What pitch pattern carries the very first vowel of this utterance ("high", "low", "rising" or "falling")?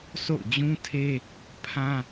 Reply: falling